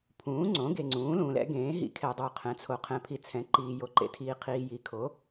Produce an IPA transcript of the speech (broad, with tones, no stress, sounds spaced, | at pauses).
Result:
pʰ ũː˩˥ ŋ͡ǀ õ˩˥ ɡ e˨ ŋ͡ǀ ũː˩˥ l ũː˨ l ɛ̰˩˥ ɡ ẽː˩˥ ɦ ḭ˩˥ kʰ ɛ˨ dˤ o˨ qʰ ɛ̃˩˥ t͡sʰ o˨ qʰ ɛ̃˨ pʰ i˨ t͡sʰ ɛ̃˩˥ ǃ iː˨ j o˨ ǃ ḛ˨ tʰ iː˨ qʰ iː˨ j i˩˥ kʰ o˩˥